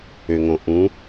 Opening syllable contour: low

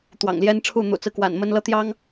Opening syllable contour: low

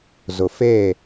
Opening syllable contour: low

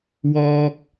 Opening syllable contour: high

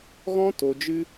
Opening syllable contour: high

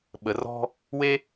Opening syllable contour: rising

